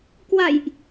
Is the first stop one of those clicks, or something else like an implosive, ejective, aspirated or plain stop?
plain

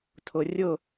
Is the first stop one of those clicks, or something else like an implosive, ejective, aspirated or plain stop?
aspirated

